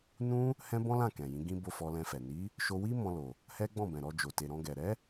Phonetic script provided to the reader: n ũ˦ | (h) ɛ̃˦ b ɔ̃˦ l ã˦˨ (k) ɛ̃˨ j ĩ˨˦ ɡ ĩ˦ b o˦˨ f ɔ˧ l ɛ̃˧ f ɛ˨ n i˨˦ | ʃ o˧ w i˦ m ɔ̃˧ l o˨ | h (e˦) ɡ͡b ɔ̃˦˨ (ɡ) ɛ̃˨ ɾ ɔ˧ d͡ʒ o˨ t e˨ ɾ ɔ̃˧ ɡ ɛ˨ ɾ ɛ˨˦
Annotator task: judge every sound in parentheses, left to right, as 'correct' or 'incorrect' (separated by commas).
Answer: correct, correct, incorrect, incorrect